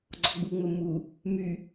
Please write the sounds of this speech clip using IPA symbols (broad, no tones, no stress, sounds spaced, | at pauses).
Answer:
ɡ͡ǀ ɔ ɡ͡b u ŋ͡m ə m u | m y